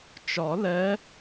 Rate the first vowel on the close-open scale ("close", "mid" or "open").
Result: open